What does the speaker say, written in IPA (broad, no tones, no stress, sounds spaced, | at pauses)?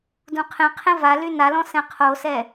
d ũ qʰ ẽ qʰ ẽ v a l y n a l ɔ̃ s ɛ̃ qʰ o s ɛ